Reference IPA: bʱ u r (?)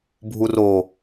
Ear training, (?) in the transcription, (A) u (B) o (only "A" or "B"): B